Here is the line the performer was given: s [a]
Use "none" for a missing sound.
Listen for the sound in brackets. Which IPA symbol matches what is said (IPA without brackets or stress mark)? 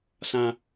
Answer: ã